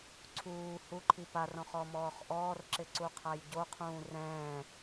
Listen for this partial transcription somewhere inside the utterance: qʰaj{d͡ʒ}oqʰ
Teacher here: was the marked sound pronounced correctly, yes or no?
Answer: no